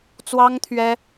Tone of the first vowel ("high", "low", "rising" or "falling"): high